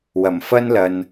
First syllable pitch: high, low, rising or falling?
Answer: low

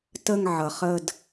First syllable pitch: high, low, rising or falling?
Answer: falling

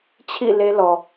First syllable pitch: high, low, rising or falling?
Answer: falling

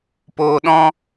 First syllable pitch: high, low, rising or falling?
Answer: low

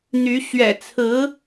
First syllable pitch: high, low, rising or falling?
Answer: rising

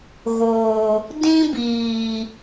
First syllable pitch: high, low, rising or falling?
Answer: low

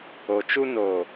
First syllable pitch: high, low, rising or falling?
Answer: low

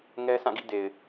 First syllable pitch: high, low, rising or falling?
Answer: high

